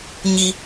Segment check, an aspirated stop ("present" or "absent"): absent